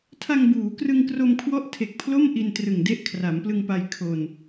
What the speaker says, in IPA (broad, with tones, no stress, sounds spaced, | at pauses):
tʰ a˧ ŋ b uː˩˦ k r ɯ˧ ŋ k r o˧ m kʰ w ɔ˥˩ ʔ tʰ e˨˩ k̚ pʰ l o˥˩ m ʔ i˧ n t r ɯ˨˩ ŋ d e˦˥ ʔ kʰ r a˩˦ m p l ɯ˧ ŋ p a˧ j kʰ o˧ n